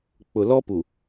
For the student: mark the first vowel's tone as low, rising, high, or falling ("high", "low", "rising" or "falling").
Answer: low